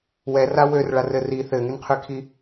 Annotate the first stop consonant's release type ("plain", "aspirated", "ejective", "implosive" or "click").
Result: aspirated